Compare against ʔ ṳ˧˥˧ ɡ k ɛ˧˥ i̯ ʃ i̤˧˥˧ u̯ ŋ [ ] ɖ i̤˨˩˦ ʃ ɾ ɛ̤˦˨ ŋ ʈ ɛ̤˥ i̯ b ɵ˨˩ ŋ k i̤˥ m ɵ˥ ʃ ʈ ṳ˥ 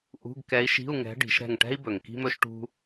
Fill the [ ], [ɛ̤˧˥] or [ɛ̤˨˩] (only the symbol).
ɛ̤˧˥